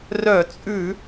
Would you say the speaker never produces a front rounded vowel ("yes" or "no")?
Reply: no